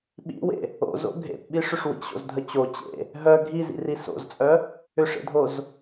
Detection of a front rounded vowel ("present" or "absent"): present